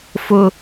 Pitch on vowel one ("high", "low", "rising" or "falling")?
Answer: high